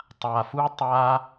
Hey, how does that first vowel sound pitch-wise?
low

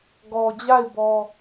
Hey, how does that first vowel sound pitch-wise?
low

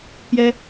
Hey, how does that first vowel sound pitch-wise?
high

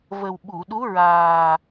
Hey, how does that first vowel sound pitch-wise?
low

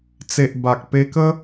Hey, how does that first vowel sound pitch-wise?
low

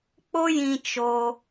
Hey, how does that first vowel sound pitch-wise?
high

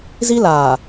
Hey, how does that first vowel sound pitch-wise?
high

